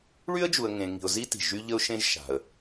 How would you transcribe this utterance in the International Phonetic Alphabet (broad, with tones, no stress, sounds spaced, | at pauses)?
ɭ y˥ ə̯ d͡ʒ u˨ ə̯ ŋ ẽ˨ ŋ i̤˨ ʊ̯ z i˦ t i̤˩ ʒ y˦ ʎ ə˦ ʊ̯ ʃ ẽ˦ ʒ ʃ a̤˩ ə̯